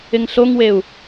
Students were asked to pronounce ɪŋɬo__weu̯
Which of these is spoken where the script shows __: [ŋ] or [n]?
ŋ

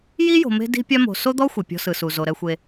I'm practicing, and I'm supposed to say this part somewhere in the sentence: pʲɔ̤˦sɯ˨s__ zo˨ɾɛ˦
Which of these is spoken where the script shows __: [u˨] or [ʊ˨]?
u˨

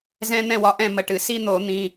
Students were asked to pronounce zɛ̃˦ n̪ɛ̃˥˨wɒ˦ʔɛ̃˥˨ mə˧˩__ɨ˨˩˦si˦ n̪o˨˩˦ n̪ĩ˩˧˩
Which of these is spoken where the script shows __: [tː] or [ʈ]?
ʈ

